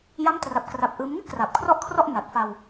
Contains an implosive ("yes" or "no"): no